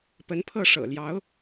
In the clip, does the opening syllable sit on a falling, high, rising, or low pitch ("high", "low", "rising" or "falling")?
rising